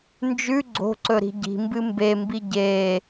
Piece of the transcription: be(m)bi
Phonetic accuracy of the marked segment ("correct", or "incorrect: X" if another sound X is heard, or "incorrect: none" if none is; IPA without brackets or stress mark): correct